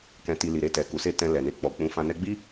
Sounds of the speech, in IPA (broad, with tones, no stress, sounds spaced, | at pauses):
k ɛ̃˨ t i˨ l i˨ ɾ e˧ t ɛ˨ k u˨ s e˧ t ɛ̃˧ l ɛ˨ n e˧ k͡p ɔ˨ k͡p ũ˨˦ f ã˧ n ɛ˧ ɡ͡b i˦